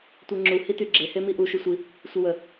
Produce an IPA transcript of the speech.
tʷ e ŋ͡ǁ u h i t y ɡ͡ǁ e h e m i ʔ u ʃ y sʷ i | sʷ ə w ə

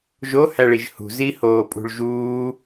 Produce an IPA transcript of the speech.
ʒ o h æ ɭ i ʒ h ṳ z i h oː pʼ ṳ ɭ ʒ uː

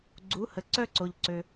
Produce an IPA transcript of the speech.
ɡ͡ǀ u˩˥ h ə˩ ǀ œ˥ ǀ o˩ ʎ ǀ ø˩

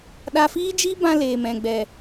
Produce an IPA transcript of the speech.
ɗ a˧ f iː˦ d͡ʒ i˦ b ã˧ l eː˨ m ɛ̃˨ ɡ͡b ɛ˨

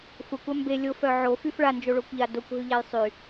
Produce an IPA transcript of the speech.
xʷ a kʷ a m b e lʲ o f œ ʕ o f y f ɭ a n d͡ʒ o ɭ o kʷ ʎ a d o kʷ ɦ y ʎ a j sˤ y

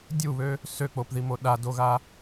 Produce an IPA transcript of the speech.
dʲ u β ø | s ø k͡p o p ð i m o ɗ a d o ɣ a

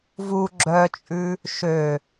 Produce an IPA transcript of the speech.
v u ɡ͡ǁ œ t͡ʃʼ ʉ | ʃ ø

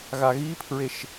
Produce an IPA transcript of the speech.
ɣ a ɣ i pʰ ɹ e ʃ

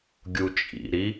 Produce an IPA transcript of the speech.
ɡʲ u t͡ʃʼ ḭ ɾ i

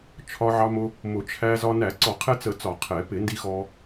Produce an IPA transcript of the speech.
t͡ʃʰ ɒ˧ ʕ ɑ˧ m ʊ˧ | m ʊ˨˩˦ t͡ʃʰ æ˧ z ɒ˧ n æ˨˩˦ ǀ ɔ˨˩˦ qʰ ɛ˧ t͡s ə˨˩˦ t͡s ɒ˨˩˦ qʰ ɛ˨˩˦ p ɪ˨˩˦ n d i˧ x ɔ˧

